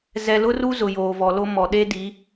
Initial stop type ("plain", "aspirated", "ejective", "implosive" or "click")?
implosive